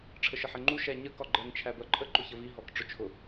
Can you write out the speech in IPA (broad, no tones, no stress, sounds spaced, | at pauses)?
ʈ͡ʂʰ ə ʃ ə ħ ɛ ŋ͡ǃ u ʃ æ ɲ ə k ɒ ɡ͡ǃ ɛ ŋ t͡ʃʰ æ b ɜ ǃʼ ə ǃ ʊ ç ə v i ɦ ɔ k ʈ͡ʂ ʊ t͡ʃʰ ʊ